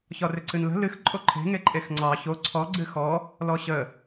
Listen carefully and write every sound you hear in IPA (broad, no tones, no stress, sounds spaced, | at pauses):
ç ɒ r ʏ ǀ ɨ n l ə̤ l ɨ x ǃʼ o ǃʰ e̤ ŋ e ǃʼ e x ŋ͡ǀ ɑ ç o ǀʰ ɔ ɡ͡ǀ ɨ x ɔ | l ɔ ɕ ə